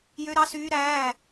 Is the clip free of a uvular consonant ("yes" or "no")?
yes